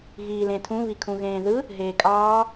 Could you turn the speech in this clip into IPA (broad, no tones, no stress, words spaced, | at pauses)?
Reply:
ɣiːlẽtʰũ βikʰũɣẽːðɯ | ɦeːkʼɑː